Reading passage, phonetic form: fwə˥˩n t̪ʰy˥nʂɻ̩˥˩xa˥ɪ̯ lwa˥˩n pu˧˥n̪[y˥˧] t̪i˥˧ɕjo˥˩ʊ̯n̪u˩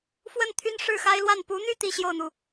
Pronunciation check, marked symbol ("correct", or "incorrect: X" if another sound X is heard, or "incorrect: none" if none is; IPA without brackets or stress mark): correct